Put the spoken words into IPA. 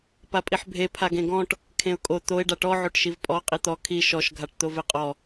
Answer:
p a pʼ i ħ bʱ e pʰ a ɡ ẽ ɡ ɔ̃ ʈ | kʰ ẽ ʊ̯ kʼ o t̪ o ɪ̯ ɖ a ʈ ɔ ʕ o ʈ ʃ i v pʼ ɔ qʼ i t̪ ɔ kʰ i ʃ ɔ ʃ ɡʱ a ʈ t̪ o v e qʼ ɔ

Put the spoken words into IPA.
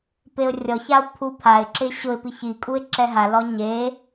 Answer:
p e ʊ̯ rʲ ɔ ç a ʊ̯ pʰ u pʰ a ɪ̯ ǁ ɪ ɕ ʊ ɪ̯ p i ç i kʼ u ɪ̯ ǁ ɛ ɦ a l ɔ ɲ e

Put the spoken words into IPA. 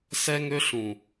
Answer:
s ɛ˦ ŋ ø˦ ɬ ũ˨

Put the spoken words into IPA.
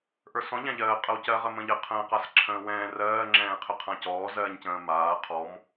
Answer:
ʔ ə˞ s ɔ̃ ʎ ã ʎ ɜː qʼ ɜ w c ɜ ʁ ə m ə̃ ʎ ə qʰ ə̃ː q a s ǁʰ ə̃ː w ɛ̃ː r ɜː ŋ͡ǁ ɛ̃ː qʰ ə qʰ ã c ɔː z ɜː ɲ c ə̃ː m aː qʰ ɔ m

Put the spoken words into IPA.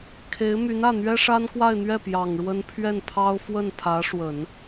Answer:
kʰ e˧˥ ɪ̯ m y˧˥ n ä˥˩ n̪ ɥ ɛ˥ ʂ a˥ n k w a˥˧ ɪ̯ n̪ ɥ ɛ˥˩ p j ɑ˨˩ ŋ ɻ w ə˥ n pʰ ɥ ɛ˥˩ n pʰ ɑ˥ ʊ̯ f w ə˥˩ n pʰ ä˧˥ ʂ w ə˨˩˦ n

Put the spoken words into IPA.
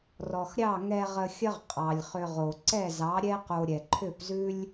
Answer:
r ɔ˨ x ɾʲ ɑ˦˨ ŋ ɛ˧ ʁ ə˧ xʲ ə˦ ʁ qʼ ɑ˨ lʲ χ ʏ˧ ʁ o˨ ǀ ɛ˦˨ z ɑ˨˦ ɾʲ ɛ˦ q o˧ ɾʲ ɛ˨ ǃʰ ʏ˦˨ p z ʉ˦ lʲ

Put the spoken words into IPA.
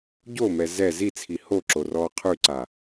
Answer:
ɟ o m ɛ z ɛ z i t͡sʰ i h o ǁ o r ɔː qʰ ʉ ǀ a

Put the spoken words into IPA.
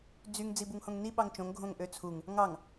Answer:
d͡z y ŋ d͡z i b u ŋ h õ ŋ n i ɓ ɑ ŋ t͡ʃ õ ŋ ɡʱ õ ŋ ʔ ø t͡sʰ u ŋ | ŋ ɑ ŋ

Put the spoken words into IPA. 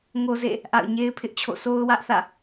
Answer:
ŋ o˦ z ḛ˦˨ | ʔ a̰˦˨ ʊ̯ ɲ e˦ ɪ̯ pʰ ɪ˦ ʔ t͡ɕʰ o̰˦˨ s o˦ ʊ̯ w ä˦ ʔ θ ä̰˦˨

